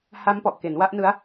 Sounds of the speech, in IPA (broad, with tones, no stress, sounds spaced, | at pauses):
h a˦˥ m p ɔ˨˩ ʔ k e˩˦ n w a˥˩ ʔ n ɯ˦˥ a̯